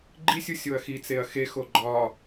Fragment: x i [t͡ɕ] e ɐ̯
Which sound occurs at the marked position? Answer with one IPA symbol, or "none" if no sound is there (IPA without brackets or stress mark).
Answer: t͡s